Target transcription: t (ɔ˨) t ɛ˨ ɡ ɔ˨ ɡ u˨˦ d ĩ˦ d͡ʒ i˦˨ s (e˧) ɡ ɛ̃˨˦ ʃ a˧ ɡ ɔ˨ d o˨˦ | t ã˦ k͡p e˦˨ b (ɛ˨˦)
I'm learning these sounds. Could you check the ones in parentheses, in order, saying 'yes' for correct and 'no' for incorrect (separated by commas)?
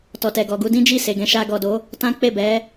yes, no, yes